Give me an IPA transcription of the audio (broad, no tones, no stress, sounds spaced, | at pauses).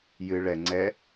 j ɨ ɭ ɛ ŋ͡ǀ ɛ